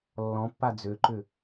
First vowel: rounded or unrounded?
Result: rounded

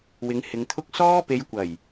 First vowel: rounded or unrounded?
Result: unrounded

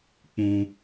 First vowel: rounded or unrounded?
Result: rounded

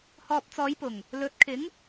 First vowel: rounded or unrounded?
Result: rounded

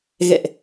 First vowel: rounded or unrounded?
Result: unrounded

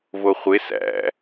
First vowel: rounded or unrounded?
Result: rounded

